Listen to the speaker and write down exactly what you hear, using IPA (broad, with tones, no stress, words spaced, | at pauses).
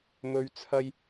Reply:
mɵ˨˧ɥt͡sʰɐ˧j